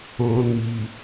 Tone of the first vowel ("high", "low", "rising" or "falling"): low